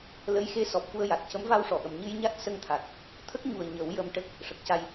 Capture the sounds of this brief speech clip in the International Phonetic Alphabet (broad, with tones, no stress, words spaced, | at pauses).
lə˧˥jxe˧˥ sɔ˨˩p̚fu˧ə̯ja˨˩t̚ cə˧˥mva˧wʂɔ˨˩˨ʔə˨˩m ɲɨ˧jɲa˦˥t̚ sə˧ŋt̪ʰa˨˩t̚ | t̪ʰə˦˥k̚ɲu˨˩ə̯ ɲə˨˩˦wjə˧mʈə˦˥k̚ | ʂə˨˩k̚ca˧j